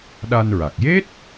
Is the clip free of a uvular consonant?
yes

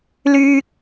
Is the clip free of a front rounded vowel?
no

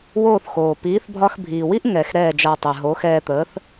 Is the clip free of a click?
yes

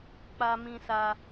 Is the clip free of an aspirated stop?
yes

